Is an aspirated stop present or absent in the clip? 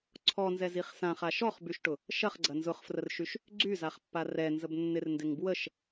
present